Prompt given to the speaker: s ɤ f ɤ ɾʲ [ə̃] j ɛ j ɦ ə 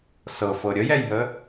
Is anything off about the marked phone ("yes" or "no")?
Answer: yes